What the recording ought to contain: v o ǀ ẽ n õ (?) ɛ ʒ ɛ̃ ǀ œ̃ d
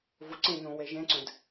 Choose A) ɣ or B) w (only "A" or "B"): B